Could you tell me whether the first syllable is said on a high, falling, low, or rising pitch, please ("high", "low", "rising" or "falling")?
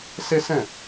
high